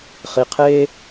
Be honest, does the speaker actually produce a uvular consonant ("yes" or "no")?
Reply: yes